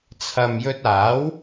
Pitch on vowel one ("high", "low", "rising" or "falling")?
low